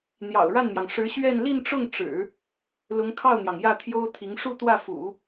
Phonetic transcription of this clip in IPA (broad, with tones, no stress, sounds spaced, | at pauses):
n̪ j ɑ̰˨˩ ʊ̯ ɻ a˥˩ n m j ɑ˩ ŋ ʂ ɻ̩˧˥ ɕ ɥ ɛ˥˧ n l i˥˧ n ʈ͡ʂ ʊ˥˩ ŋ ʈ͡ʂ ɻ̩˨˩˦ | l ʊ˧˥ ŋ kʰ ɑ˥˩ ʊ̯ n̪ j ɑ˩ ŋ j ä˥˩ t̪ʰ j o˥ ʊ̯ t̪ʰ i˧˥ ŋ ʂ u˥˧ t̪ w ä˥˩ f ṵ˨˩˦